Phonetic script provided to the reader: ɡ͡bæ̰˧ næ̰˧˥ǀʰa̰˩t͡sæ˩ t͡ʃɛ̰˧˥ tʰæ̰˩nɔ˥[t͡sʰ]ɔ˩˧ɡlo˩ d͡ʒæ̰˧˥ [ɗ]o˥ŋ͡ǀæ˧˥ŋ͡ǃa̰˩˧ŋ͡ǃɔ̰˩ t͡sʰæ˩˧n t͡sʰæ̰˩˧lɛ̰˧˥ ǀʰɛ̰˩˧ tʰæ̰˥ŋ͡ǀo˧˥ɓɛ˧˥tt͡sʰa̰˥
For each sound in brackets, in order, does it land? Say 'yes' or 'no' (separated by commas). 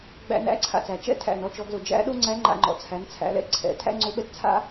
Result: no, yes